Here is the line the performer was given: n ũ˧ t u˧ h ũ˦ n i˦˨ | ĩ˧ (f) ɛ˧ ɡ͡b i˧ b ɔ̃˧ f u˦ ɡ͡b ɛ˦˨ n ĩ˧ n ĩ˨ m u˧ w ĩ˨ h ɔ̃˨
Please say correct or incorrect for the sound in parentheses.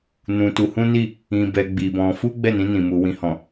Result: incorrect: b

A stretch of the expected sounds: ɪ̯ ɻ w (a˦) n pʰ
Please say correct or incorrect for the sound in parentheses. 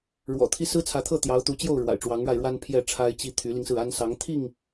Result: correct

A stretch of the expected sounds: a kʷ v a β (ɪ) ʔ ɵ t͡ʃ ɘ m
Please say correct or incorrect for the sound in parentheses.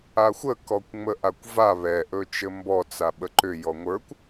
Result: incorrect: ɛ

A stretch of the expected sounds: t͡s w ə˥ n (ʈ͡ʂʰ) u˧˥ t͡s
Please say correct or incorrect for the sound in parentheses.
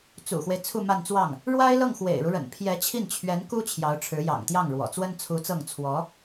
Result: incorrect: t͡sʰ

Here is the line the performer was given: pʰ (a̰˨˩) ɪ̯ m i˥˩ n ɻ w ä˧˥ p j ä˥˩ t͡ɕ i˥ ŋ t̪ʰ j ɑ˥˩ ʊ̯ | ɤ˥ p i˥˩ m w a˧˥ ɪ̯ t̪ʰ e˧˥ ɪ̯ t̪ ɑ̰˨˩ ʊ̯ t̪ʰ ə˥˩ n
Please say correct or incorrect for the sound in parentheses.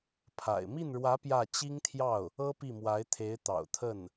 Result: correct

